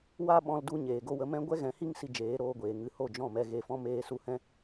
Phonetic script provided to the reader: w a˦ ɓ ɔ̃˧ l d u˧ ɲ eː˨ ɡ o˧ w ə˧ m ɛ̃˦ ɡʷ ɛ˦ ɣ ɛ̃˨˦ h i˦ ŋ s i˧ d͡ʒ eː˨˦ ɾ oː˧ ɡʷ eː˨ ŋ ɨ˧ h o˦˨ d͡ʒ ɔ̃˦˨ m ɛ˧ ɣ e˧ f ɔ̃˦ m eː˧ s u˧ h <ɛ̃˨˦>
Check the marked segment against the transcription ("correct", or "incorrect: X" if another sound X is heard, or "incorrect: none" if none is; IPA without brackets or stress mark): incorrect: ɛ̃˦